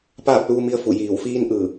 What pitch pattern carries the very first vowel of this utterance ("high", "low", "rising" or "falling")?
falling